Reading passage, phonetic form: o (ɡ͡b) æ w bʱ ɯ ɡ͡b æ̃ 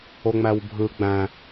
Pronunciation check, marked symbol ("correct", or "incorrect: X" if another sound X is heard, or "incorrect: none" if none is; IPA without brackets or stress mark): incorrect: ŋ͡m